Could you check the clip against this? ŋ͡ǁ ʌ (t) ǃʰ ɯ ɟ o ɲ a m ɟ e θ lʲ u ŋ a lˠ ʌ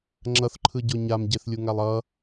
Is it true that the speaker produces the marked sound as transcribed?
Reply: no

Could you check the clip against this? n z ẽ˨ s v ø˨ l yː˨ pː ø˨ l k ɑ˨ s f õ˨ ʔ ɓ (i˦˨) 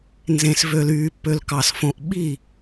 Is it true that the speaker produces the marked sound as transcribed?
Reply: yes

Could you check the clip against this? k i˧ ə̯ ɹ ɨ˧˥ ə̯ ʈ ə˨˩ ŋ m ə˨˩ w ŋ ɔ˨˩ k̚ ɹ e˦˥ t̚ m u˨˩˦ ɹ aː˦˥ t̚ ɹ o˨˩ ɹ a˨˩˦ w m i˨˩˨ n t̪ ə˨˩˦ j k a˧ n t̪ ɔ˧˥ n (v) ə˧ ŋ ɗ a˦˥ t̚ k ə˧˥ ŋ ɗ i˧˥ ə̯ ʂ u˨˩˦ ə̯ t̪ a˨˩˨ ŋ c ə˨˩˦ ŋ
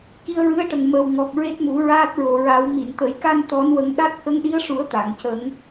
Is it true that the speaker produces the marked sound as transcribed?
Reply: no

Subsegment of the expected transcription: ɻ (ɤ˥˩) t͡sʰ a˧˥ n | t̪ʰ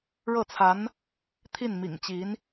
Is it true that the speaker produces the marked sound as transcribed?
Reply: yes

